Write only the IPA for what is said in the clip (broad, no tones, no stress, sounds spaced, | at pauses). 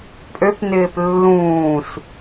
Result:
pʼ ø p n ɪː p lː ũː s